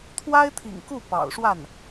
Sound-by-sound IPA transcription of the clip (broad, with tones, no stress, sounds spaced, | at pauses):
t̪ʰ w a˥ ɪ̯ t̪ʰ ḭ˨˩ ŋ k u˥˩ p ɑ̰˨˩ ʊ̯ ʂ w a˥˩ n